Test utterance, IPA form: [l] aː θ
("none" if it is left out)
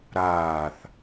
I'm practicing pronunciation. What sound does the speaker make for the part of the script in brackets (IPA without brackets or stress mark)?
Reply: ɾ